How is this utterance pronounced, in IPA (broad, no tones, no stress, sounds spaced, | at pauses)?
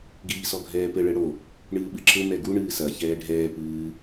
ɡ iː s ɔ ɡʱ ɛː p ɘ ɭ ɘ ɽ o | ɳ ɨː ɓ ɨ ǁ ɘ m ɛ ɡ u ɳ ɨː s ɐ ç ɛː ɖʱ ɛː p ɨː